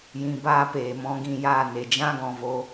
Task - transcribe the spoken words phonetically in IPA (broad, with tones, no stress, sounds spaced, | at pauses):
j ĩ˧ b aː˦ p eː˨ m ɔ̃˧ ɡ ĩ˦˨ j aː˦˨ n e˨ d͡ʒ ã˦ ɡ ɔ̃˨ v o˧